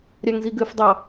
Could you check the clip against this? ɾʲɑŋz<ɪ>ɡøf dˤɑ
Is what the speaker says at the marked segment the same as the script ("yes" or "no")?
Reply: no